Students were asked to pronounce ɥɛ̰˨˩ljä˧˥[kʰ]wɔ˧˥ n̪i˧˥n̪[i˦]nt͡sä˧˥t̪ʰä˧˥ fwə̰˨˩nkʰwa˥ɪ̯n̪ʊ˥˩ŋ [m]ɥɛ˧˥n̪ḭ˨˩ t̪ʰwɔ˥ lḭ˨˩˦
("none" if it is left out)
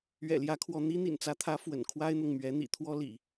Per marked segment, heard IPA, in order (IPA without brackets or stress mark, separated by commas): kʰ, ḭ˨˩, m